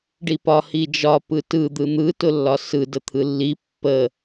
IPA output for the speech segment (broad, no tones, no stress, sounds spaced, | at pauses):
ɖ i p ɒ h i d͡ʒ ɒ p ɯ t ɯ d̪ ɯ n̪ ɯ t ʊ lː ɒ s ɯ d ə t̪ʰ ɯ lː i pː ə